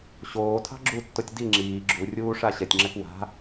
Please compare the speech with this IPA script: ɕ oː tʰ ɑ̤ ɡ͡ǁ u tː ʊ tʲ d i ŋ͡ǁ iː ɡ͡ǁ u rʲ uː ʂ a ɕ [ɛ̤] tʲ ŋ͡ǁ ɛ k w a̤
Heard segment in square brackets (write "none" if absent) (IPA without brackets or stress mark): ɛ